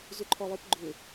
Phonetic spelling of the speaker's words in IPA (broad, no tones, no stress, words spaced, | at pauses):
zʏǃʰɔlˠɯpɡ͡ǃʏ